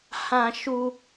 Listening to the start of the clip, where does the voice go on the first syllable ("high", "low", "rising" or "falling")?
high